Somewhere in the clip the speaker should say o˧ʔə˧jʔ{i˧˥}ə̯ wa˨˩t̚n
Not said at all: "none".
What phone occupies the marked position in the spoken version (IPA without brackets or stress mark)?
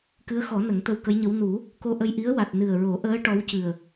i˧˥